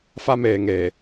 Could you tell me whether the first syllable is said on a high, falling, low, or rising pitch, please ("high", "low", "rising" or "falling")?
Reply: high